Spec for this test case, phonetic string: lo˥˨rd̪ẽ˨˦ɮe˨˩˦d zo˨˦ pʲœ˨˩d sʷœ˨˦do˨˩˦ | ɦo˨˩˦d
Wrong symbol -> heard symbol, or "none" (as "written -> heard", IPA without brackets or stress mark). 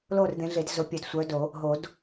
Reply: none